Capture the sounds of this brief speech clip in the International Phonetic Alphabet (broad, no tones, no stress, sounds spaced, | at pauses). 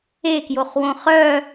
e k j o χ w õ χ œ